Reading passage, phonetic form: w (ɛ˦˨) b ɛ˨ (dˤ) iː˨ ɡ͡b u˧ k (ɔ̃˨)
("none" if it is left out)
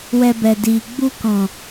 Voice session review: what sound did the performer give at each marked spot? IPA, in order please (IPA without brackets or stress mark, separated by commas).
ɛ˧, d, ɔ̃˨